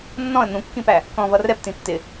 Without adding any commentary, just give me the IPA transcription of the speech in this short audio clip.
nːɔ̃ə̯ n̪ũkːĩpæ | kɔ̃vʌ rɛptĩ tːɪ

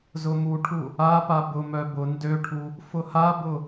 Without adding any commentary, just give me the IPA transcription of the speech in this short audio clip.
zʊmuʈʰu | apa bʊmœ bʊ ndøʈʰu | fʊhabʊ

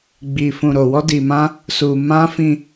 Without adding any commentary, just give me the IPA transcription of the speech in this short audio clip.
ɡ͡bi˧fũ˧ ɾo˧wɔ˦di˧mã˦ | su˧mã˦ fĩ˧

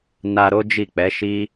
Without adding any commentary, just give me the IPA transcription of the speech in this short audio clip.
na˧ ɾo˦ d͡ʒi˦˨k͡pɛ˨˦ʃi˦

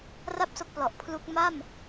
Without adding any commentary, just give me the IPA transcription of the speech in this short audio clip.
ra˥˩p̚so˦˥k̚plɔ˨˩ʔ pʰlu˦˥k̚ ma˥˩m

